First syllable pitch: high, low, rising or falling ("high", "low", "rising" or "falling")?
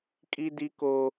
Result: high